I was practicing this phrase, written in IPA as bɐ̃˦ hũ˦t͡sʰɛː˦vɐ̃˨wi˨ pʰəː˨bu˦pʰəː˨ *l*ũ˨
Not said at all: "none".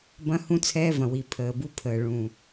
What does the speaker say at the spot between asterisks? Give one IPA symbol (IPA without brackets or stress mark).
ɭ